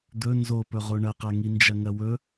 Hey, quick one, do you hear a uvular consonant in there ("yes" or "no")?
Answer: yes